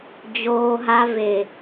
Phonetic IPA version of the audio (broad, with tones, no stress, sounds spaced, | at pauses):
d͡ʑ oː˧ ɦ a˧ v e˨